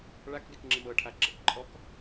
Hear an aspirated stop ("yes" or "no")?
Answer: yes